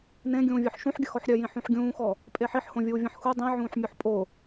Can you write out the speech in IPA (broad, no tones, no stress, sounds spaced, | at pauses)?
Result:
n ẽ ɡʲ ũː vʲ œ ħ ʃ ũ ħ ɡʲ ə x ɔ ħ ɾʲ œ j ĩ ħ ũ ħ ɡʲ ũː x ɔ | pʼ e ħ i ħ h õ vʲ uː vʲ ə̃ ħ x u dˤ ĩ ʕ ũː ħ mʲ o ħ pʼ o